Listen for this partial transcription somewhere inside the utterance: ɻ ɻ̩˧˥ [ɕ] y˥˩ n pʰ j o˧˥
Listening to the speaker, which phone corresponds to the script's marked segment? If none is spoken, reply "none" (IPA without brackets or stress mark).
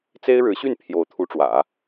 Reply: ɕ